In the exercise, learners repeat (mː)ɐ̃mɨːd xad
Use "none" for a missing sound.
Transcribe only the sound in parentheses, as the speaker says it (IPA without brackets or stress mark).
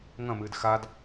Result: ŋ